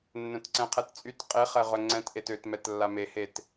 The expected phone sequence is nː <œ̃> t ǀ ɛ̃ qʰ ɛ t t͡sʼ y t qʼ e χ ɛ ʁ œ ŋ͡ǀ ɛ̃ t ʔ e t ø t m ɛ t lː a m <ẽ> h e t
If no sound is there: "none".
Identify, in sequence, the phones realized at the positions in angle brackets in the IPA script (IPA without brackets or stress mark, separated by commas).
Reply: œ̃, e